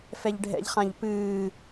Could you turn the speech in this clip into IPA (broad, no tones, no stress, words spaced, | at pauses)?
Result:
fɛʎɖʱɛ̰ʎχãʎ pɨː